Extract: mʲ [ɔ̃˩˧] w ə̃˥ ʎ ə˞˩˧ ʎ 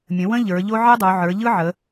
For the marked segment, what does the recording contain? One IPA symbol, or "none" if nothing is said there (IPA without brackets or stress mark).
ə̃˩˧